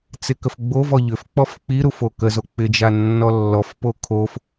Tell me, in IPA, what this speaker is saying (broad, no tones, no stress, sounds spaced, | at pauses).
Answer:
t͡s ɪ k ə f ɡ͡b o v ɔ ʎ ʏ f k͡p ɔ f k͡p i ɾ u f o k ə z o k͡p ɪ d͡ʒ a nː ɔ lː ɔ f p o kʰ o f